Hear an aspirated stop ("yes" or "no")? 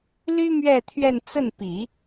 yes